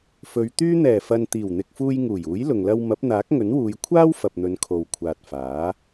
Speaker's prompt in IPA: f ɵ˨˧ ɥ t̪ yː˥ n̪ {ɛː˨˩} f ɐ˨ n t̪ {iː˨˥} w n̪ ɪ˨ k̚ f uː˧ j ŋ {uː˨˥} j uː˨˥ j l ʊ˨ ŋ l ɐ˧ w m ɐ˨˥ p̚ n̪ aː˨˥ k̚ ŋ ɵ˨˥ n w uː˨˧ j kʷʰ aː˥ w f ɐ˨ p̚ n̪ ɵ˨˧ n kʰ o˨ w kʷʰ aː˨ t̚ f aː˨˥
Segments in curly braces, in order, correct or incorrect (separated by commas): correct, incorrect, incorrect